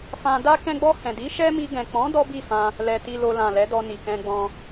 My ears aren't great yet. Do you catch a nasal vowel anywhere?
yes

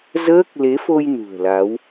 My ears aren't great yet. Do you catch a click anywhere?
no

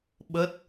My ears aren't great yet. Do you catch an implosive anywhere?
yes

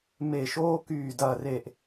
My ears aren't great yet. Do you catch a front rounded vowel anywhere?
yes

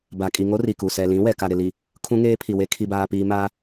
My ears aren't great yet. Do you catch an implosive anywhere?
no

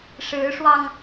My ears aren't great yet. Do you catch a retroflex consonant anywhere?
yes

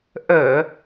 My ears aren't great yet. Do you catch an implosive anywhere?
no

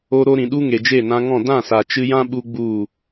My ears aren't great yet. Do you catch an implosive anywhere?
yes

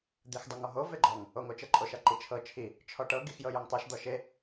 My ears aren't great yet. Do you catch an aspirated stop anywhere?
yes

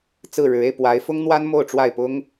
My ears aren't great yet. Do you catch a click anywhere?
no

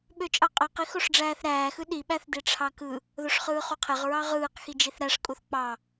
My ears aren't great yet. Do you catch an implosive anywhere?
yes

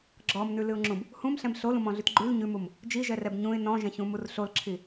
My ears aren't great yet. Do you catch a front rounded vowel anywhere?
no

